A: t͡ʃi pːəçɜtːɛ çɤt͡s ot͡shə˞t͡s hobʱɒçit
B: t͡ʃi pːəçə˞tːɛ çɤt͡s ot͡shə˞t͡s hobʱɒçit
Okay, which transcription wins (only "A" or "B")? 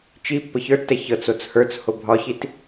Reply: B